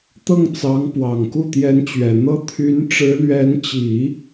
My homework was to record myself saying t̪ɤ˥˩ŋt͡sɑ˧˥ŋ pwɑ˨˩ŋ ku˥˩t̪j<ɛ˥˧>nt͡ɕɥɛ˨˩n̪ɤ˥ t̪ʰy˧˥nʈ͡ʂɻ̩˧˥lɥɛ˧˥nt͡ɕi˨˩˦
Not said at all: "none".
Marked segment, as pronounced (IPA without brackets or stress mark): ɛ˧˥